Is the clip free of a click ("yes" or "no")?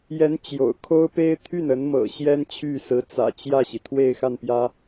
yes